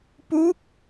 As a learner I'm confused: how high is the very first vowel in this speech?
high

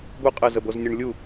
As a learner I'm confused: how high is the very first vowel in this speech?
high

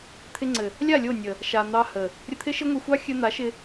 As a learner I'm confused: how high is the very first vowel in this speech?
high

